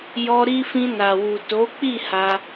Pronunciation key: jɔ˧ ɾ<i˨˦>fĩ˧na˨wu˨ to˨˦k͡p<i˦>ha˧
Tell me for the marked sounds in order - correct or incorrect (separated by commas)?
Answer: incorrect, incorrect